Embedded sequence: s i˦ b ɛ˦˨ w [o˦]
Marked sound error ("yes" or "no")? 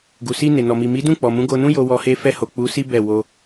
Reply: yes